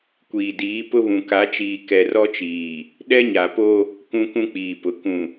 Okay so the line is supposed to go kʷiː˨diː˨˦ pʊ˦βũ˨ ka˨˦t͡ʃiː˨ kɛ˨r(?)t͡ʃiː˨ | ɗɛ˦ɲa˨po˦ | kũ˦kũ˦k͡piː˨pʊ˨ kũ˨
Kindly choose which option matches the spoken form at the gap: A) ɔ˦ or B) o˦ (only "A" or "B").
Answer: A